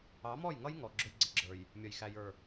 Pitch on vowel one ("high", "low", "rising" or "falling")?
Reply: rising